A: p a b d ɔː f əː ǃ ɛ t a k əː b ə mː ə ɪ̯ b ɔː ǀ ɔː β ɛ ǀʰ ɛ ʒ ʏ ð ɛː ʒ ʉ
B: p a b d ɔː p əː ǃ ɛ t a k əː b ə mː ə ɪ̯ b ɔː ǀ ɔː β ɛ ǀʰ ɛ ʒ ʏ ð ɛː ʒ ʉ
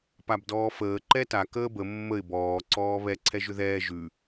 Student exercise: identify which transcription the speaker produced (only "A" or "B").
A